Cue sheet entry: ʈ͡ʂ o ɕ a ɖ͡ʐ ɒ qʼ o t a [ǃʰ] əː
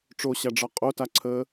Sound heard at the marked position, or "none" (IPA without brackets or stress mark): ǀʰ